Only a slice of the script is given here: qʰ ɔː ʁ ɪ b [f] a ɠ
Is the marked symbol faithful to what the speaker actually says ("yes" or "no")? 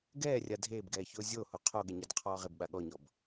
no